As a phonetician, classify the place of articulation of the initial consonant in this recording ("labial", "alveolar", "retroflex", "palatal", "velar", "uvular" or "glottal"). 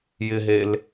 palatal